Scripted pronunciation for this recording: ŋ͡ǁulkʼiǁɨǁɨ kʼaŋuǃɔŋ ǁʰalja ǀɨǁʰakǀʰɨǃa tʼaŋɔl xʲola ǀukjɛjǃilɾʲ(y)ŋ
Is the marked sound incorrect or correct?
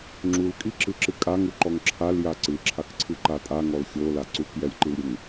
incorrect